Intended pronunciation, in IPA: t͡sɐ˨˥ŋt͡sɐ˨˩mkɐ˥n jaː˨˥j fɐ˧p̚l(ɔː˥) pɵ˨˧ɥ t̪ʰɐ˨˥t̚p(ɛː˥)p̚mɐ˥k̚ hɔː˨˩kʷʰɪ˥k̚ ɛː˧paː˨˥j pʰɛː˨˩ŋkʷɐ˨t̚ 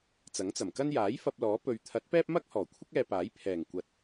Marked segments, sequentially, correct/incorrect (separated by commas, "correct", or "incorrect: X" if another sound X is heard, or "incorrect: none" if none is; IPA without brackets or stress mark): incorrect: ɔː˨˥, correct